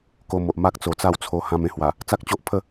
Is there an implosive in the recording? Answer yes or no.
no